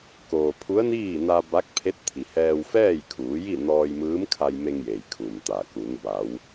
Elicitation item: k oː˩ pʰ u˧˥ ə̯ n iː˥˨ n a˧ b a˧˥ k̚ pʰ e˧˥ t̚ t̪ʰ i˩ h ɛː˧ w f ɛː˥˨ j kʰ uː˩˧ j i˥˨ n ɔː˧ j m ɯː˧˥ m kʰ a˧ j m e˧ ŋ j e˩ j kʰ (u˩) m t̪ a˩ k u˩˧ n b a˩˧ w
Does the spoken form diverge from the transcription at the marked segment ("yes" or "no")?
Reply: no